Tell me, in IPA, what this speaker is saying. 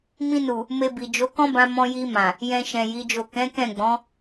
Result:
m ĩ˧ n u˨ | m e˧ b i˨ d͡ʒ o˨˦ k ɔ̃˦ b ã˧ m ɔ̃˧ j i˧ m ã˨ | j ɛ̃˧ ʃ ɛ̃˨ j i˨˦ d͡ʒ o˦˨ k ɛ̃˨˦ k ɛ̃˦˨ ɡ͡b ɔ̃˨˦

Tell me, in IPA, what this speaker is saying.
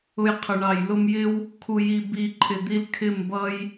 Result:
ʊ˧ j qʰ ʊ˨ ɳ ɑ˨ j l ʊ˧ m j ɪ˦ w | kʰ u˨ j i˨ b i˨ ǃʼ ɪ˨ d̪ i˧ l kʰ ɪ˦˨ m b ʌ˦ j

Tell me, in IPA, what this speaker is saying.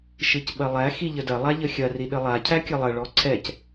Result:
ʃ ɨ c ɓ ɐ lˠ æ x i ʎ ə d ɐ lˠ a ʎ ə xʲ ɐ r i ɗ ə lˠ a cʰ æ kʲ ɐ lˠ ɐ ɭ ɔ ǀʰ ɛ c

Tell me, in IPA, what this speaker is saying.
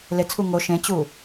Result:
l e t͡sʰ u ŋ o ʃ ẽ t͡ɕ u

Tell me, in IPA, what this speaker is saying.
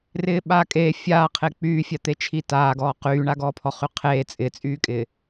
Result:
r ɪː ɓ aː kʼ eː fʲ aː qʰ e k͡p yː fʲ a t̪ e t͡ʃʰ i t aː ɡ ɔː q yː ɳ a ɡ ɔː pʰ ɔ χ y qʰ eː t͡sʼ ɪ t͡sʼ yː kʼ ɪː

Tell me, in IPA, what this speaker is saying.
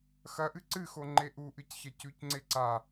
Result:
x ɐ ʔ ɨ ǀ ɨ x o ŋ͡ǃ e ʔ u ʔ ɨ c ç ɐ c ʉ c ŋ͡ǀ e ǀ a

